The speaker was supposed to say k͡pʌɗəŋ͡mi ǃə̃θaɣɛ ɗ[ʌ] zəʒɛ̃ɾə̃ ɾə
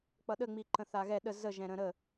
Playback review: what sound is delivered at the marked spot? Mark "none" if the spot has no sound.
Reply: ə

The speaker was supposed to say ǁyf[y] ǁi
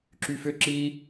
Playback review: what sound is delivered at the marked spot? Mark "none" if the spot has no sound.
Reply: ʏ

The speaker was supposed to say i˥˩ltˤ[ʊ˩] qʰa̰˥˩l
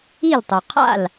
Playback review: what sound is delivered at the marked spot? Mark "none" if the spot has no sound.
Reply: ʊ˩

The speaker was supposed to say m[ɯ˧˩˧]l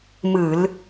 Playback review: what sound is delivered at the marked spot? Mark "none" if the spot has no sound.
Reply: ɯ˧˩˧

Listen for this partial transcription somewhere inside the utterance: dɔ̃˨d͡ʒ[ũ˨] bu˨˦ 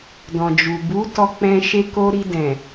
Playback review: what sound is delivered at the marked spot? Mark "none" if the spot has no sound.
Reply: u˨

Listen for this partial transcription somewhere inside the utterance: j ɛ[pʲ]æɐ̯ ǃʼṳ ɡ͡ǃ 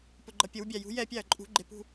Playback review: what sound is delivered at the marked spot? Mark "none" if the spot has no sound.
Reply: pʲ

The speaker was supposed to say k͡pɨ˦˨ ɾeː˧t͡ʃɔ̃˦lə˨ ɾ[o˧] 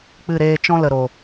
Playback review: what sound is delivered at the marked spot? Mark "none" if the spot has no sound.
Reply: o˨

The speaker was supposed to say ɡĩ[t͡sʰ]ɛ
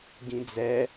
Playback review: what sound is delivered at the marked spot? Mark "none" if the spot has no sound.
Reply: d͡z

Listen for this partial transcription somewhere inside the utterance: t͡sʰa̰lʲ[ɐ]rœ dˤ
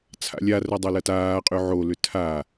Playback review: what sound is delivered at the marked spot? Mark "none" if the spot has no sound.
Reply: a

